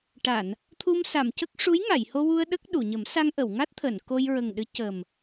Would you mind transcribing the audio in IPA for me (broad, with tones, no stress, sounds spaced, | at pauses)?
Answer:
ʈ a˨˩˨ n | t̪ʰ u˧ m s a˨˩˨ m c ə˦˥ k̚ ʂ u˧˥ j ŋ a˨˩˨ j h o˧ w u˧ ə̯ ɗ ə˦˥ k̚ ɗ u˨˩˨ ɲ ə˨˩˦ m s a˧ ŋ ʔ ə˨˩˨ w ŋ a˦˥ t̚ t̪ʰ əː˨˩˨ n k o˧ j ɹ ə˨˩ ŋ ɗ ɨ˧˥ c ə˨˩ m